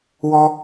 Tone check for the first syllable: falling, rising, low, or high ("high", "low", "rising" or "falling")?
high